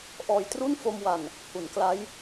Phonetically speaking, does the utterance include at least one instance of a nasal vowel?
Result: no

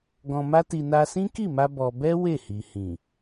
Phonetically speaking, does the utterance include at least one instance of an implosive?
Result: no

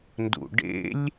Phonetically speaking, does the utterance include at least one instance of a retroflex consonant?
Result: yes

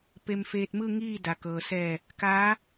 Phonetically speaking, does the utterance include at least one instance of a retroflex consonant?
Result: no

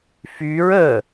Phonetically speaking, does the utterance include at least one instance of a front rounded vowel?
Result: yes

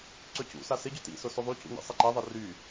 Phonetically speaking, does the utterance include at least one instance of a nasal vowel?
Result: no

